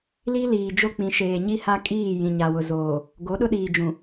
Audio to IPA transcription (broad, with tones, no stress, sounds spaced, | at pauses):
l i˦ l iː˨ d͡ʒ o˦ k͡p ĩ˨ ʃ eː˨ ɲ i˦ h a˦ kʼ iː˦˨ j ĩ˨ ɲ a˨ w ʊ˨ z oː˨ | ɡ o˨˦ ɗ ʊ˦ ɗ iː˨ d͡ʒ ũ˨